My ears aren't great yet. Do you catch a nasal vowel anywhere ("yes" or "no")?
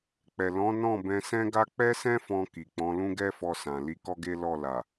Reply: yes